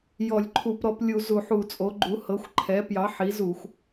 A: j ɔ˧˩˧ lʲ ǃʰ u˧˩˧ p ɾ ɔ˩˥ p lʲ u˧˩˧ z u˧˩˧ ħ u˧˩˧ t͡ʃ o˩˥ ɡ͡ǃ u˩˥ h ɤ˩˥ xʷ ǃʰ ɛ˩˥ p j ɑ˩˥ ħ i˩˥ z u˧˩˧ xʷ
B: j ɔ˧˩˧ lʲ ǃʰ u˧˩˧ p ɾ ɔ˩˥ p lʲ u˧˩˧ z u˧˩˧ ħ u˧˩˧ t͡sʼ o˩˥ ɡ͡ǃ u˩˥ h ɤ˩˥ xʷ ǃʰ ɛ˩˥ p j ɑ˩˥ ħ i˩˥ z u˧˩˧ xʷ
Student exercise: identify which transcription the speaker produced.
B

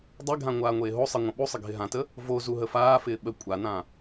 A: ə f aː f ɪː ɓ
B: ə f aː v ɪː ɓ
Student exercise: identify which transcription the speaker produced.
A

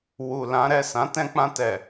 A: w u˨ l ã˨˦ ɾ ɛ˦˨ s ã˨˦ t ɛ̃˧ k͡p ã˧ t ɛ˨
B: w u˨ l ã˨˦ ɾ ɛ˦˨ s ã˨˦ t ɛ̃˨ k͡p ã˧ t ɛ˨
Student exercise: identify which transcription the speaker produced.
A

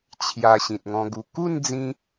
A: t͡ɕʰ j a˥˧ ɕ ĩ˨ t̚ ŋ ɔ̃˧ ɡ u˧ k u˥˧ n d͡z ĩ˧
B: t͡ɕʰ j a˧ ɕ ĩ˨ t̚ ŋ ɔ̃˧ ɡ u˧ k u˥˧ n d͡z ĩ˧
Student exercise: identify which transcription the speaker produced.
B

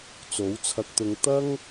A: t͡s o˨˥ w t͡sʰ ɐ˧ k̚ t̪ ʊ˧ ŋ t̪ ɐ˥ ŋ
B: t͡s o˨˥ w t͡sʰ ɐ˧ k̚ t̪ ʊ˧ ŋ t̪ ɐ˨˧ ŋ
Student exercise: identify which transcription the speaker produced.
A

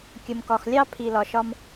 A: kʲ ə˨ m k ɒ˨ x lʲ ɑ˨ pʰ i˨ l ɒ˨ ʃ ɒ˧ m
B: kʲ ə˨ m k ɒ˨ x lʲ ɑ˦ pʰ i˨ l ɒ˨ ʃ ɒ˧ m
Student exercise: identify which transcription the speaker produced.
B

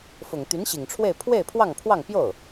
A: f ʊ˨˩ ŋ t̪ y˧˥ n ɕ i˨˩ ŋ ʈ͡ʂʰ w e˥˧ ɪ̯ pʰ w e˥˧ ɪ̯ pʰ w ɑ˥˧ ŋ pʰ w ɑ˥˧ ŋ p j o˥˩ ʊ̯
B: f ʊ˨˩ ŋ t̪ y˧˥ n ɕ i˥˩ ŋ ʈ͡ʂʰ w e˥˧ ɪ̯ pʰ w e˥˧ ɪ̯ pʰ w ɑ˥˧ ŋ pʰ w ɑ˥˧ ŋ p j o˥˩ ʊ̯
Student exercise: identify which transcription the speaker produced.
A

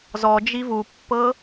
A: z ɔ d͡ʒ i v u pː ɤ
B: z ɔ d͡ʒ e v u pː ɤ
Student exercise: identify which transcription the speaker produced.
A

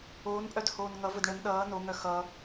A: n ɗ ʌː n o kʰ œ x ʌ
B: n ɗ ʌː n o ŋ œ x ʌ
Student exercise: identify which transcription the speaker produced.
B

